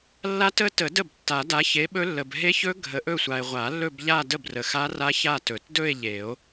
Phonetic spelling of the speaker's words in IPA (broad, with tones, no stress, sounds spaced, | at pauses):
lː a˦˥ t ə˦˥ t ə˨˩˦ d ə˥˩ b tː a˨˩˦ d a˨˥ ç e˨˥ ɓ ɵ˦˥ lː ə˨ b ɦ e˦˥ ç ɵ˦˥ ɡʱ ə˨˥ ʔ ɵ˥˧ sʷ a˨ e̯ ʁʷ a˨˩˦ lː ɵ˥˧ b ʎ a˥˧ d ə˥˩ b r ə˨ x a˦˥ r a˦˥ ç a˥˧ t ɵ˨˩˦ t d ɵ˥˧ e̯ ʎ e˨˩˦ o̯